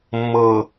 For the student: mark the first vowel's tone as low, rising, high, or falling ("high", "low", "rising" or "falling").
low